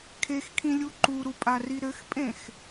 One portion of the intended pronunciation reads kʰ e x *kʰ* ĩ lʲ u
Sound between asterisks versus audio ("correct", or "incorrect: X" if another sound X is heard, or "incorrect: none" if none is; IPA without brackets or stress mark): correct